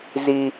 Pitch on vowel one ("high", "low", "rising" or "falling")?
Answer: high